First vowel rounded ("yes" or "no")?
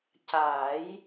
no